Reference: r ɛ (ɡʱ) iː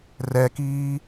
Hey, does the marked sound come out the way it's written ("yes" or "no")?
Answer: no